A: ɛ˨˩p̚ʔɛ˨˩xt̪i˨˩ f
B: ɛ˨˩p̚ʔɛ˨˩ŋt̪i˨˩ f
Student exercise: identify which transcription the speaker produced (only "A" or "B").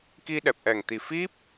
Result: B